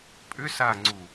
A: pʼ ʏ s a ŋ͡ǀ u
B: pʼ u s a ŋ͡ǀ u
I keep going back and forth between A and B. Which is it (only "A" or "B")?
A